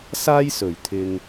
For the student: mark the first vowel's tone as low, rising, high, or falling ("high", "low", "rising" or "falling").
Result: high